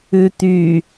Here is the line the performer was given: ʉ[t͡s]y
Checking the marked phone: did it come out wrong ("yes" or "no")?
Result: yes